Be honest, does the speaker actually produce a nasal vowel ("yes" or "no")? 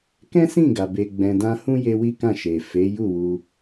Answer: yes